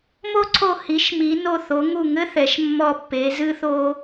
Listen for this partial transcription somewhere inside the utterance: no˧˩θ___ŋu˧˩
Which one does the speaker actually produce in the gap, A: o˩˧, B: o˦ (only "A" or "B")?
A